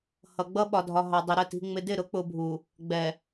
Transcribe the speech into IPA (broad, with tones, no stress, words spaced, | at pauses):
hʌ˨ɡ͡bʌ˦ɓɒ˨dʱɒ˨ ɦɑ˨dˤɪ˨ ɾə˦˨ti̤˨ ŋ͡mɪ˨dɪ˦˨ɾʊ˨˦k͡pʊ˨ bʱu˨ | ɡ͡bɛ˨